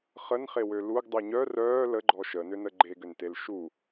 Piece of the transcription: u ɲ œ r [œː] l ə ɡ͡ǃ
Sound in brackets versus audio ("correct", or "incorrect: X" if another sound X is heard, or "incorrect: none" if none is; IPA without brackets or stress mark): correct